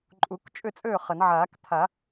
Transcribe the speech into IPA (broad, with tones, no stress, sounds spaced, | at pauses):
ǃʼ u˨˩˦ k t͡ʃʼ ʏ˥˩ t͡sʼ ø˥˩ χ ə˨˩˦ n ʕ aː˨˩˦ k t̪ʰ a˨˩˦